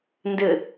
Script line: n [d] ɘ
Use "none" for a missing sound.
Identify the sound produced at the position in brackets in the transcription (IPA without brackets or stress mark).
d